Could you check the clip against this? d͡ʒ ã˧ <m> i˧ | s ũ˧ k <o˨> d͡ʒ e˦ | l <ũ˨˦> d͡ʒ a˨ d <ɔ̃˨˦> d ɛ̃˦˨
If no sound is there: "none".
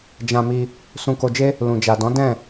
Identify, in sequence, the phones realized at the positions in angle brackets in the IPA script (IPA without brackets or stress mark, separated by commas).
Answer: m, o˧, ũ˨, ɔ̃˨˦